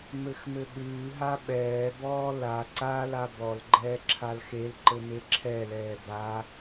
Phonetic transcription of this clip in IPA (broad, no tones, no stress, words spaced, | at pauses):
mɘxmɘɠʉːɦa ɓɛːbɔː la ǀala bɔlɡ͡ǃɛː ǁʰalxelǃɘ meǁʰɛlɛː ba